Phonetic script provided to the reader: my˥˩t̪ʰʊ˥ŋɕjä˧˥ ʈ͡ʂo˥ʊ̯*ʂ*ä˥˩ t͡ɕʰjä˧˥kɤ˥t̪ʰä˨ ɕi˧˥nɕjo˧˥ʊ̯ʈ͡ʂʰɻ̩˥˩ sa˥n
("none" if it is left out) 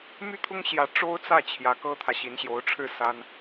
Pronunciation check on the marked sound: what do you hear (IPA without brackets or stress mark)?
t͡s